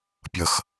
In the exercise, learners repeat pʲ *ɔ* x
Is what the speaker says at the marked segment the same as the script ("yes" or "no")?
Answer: no